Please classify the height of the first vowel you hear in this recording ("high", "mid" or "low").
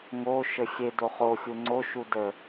mid